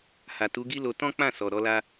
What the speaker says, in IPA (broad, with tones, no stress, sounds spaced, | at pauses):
h a˨ t u˨˦ ɡ i˦ l o˧ t ɔ̃˦ k͡p ã˦˨ s ɔ˨ ɾ ɔ˨˦ l a˦